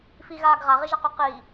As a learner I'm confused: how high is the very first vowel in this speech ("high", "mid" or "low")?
high